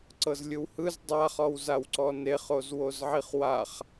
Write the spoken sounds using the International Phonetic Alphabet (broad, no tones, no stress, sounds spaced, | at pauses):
ǀ ɤ z lʲ ɯ w h ɯ z dˤ a χ ɔ w z a w ǀ ɔ n e χ o z w o z ʕ i χ w a χ